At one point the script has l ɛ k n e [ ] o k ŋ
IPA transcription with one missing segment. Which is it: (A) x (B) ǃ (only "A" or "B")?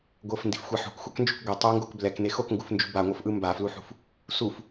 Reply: A